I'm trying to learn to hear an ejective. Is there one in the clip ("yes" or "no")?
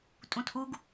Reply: yes